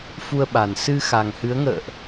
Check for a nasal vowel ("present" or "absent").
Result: absent